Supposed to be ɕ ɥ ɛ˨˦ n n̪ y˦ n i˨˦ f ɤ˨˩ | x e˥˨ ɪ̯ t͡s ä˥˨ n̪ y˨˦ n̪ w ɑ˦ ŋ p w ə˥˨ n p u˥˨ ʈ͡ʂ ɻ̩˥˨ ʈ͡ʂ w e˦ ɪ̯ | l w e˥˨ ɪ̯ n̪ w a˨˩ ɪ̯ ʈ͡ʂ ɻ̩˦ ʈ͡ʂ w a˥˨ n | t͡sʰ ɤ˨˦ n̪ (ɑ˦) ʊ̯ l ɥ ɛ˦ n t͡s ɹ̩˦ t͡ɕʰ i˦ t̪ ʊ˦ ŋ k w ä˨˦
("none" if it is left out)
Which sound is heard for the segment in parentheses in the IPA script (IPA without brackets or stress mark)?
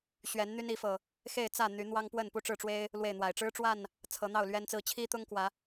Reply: ɑ˥˨